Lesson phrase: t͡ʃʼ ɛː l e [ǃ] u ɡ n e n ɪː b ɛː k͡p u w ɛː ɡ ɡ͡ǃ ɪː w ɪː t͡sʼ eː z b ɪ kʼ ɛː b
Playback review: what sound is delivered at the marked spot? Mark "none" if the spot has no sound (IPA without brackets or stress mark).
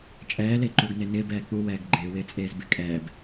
ǃ